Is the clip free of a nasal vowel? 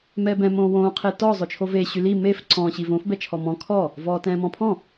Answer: no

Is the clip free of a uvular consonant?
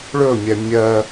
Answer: yes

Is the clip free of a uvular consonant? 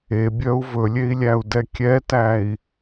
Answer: yes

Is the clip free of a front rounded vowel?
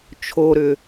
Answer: no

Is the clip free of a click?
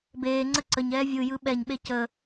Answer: no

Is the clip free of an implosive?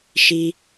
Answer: yes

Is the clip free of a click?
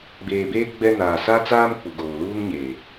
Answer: yes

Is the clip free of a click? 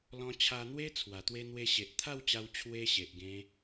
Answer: yes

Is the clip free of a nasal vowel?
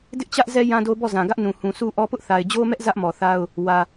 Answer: no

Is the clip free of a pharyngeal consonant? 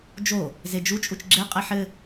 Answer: no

